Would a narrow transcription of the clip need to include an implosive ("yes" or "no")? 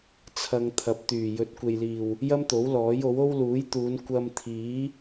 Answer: no